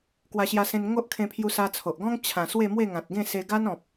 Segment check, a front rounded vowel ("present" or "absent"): absent